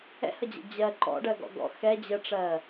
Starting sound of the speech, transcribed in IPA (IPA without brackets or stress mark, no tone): ɛ̰